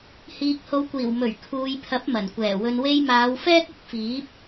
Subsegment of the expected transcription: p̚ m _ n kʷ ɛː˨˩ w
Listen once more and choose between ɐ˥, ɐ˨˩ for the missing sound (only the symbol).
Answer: ɐ˨˩